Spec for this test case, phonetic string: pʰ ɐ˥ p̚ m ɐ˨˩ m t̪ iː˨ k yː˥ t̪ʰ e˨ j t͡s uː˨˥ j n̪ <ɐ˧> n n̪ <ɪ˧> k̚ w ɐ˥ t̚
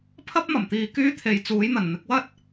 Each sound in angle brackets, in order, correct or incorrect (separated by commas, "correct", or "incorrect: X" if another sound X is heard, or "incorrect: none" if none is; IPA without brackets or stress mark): incorrect: ɐ˨˩, incorrect: ɪ˨˥